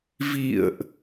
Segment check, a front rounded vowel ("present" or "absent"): absent